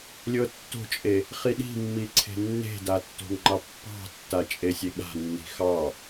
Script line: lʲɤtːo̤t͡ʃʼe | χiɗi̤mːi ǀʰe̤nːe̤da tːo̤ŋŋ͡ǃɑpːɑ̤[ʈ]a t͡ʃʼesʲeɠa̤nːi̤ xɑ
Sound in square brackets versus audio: incorrect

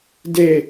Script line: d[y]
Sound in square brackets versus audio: incorrect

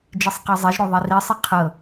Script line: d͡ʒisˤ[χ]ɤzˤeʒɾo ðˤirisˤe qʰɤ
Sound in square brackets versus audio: incorrect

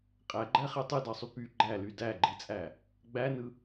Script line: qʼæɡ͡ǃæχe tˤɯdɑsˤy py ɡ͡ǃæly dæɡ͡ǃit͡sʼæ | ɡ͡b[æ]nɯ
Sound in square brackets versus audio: correct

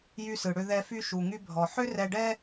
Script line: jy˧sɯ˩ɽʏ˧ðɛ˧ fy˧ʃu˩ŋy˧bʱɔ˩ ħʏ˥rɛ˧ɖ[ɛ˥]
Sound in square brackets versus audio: correct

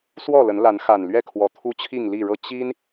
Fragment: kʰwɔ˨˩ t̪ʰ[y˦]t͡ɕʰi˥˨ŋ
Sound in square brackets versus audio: incorrect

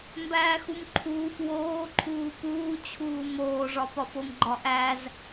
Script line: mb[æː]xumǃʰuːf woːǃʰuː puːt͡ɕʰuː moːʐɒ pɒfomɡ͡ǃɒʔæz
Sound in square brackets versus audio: correct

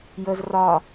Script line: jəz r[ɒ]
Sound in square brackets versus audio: correct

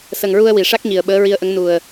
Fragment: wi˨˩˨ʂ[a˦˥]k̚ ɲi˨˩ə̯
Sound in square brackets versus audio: correct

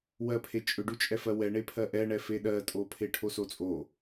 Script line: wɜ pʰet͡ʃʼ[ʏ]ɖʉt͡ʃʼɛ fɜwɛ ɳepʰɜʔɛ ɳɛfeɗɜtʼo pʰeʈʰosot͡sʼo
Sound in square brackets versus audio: correct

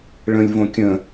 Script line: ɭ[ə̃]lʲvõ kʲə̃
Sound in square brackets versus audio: correct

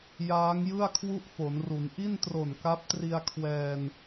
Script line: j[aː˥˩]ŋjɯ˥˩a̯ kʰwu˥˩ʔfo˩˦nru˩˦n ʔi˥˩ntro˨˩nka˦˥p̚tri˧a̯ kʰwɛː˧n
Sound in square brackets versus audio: incorrect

